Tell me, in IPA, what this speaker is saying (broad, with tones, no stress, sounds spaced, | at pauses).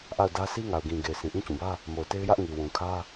ʔ a˦˨ ʊ̯ d ä˦ s i˦ ŋ a˨ ʊ̯ ɡ ĩ˨ ɡ e˨ ɪ̯ s ĩ˨ ʔ ĩ˦ t͡ɕ ũ˨ b ä˦ | m o˨ ʊ̯ t e˦ ɪ̯ j ä˦ ʔ ŋ i˨ w ũ˨ kʰ ä˦